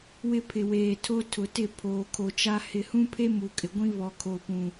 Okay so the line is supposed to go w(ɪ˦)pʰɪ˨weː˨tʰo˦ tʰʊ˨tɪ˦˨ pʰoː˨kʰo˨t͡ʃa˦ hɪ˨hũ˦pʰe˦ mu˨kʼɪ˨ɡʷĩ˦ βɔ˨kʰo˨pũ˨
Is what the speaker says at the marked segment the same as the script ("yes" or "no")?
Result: yes